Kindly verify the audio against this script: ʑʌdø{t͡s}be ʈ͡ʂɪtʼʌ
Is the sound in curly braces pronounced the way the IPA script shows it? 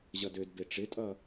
no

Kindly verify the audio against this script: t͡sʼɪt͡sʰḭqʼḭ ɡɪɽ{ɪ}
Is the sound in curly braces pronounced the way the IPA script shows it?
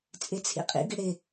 yes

